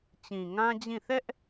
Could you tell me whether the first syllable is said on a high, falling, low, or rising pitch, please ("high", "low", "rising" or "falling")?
low